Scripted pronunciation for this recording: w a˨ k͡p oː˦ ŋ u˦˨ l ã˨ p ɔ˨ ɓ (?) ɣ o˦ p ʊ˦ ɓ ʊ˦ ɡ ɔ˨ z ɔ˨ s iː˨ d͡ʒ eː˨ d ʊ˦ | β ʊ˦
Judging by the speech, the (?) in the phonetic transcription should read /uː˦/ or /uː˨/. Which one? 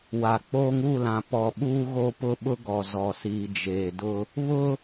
uː˦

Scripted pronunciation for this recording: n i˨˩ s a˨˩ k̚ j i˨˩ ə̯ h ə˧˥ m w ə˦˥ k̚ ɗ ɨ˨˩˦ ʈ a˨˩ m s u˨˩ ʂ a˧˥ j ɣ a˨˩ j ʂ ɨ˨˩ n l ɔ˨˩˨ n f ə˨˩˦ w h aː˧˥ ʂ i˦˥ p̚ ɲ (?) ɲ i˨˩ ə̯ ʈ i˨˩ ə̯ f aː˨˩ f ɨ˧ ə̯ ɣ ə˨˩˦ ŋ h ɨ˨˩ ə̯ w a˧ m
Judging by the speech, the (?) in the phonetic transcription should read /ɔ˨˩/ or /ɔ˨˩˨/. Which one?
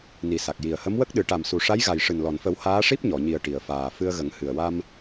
ɔ˨˩˨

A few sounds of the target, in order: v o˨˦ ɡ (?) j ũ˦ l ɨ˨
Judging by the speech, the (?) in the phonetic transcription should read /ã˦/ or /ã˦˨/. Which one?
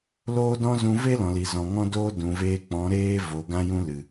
ã˦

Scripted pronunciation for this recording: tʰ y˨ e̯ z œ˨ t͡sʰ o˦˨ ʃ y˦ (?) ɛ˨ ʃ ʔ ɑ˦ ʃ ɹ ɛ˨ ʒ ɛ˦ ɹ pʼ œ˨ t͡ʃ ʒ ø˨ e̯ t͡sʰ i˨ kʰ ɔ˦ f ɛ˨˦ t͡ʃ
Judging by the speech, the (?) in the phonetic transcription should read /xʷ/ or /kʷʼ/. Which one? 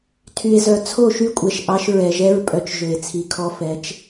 kʷʼ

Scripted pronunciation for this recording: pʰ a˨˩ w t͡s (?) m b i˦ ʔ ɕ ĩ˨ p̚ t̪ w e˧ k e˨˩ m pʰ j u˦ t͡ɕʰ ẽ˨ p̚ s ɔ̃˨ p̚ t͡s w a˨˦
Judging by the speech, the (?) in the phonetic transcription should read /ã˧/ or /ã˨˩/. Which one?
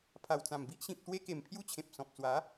ã˨˩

